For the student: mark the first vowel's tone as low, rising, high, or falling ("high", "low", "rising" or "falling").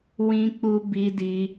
high